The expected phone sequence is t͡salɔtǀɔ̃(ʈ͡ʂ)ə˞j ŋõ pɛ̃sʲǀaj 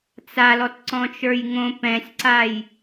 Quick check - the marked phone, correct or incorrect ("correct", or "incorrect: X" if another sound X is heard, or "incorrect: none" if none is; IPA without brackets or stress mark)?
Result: incorrect: t͡ʃ